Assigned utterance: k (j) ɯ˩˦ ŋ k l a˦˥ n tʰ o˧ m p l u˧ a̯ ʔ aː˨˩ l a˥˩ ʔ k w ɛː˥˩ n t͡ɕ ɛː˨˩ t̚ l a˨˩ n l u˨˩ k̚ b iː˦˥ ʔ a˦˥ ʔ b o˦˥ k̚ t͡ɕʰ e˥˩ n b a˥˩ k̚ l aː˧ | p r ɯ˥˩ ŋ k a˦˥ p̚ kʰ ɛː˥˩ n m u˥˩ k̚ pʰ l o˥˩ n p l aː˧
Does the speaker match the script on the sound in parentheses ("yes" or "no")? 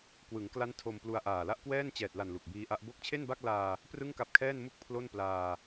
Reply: no